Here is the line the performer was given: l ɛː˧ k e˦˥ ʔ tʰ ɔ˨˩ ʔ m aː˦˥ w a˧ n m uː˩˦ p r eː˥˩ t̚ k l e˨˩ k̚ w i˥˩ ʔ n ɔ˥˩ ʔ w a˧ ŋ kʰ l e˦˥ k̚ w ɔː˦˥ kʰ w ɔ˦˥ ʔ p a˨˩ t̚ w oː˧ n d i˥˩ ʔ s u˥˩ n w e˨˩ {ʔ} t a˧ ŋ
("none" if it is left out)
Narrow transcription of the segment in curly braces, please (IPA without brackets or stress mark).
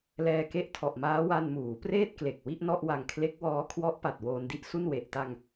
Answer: ʔ